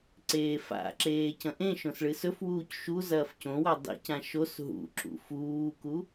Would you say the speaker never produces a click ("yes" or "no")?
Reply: no